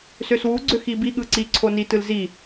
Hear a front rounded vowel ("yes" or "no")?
yes